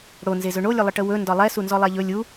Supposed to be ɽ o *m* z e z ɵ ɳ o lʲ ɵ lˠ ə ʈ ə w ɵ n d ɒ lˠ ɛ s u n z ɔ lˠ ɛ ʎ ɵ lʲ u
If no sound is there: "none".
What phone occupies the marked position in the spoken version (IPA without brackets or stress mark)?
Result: n